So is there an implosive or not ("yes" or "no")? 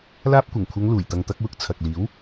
no